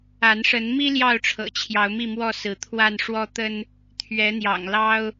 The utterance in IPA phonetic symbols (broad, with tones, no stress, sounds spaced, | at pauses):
a˨˦ n ʂ ə˨˦ n m i˦ l j ɑ˥˨ ʊ̯ ʈ͡ʂʰ ɤ̰˨˩ t͡ɕʰ j ɑ˨˦ ʊ̯ m i˥˨ m w ɔ˥˨ s ɹ̩˨˦ t̪ʰ w a˥˨ n ʂ w ɔ˦ t̪ ə˦ n | t̪ʰ ɥ ɛ˨˦ n̪ j ɑ̰˨˩ ŋ l ɑ˦ ʊ̯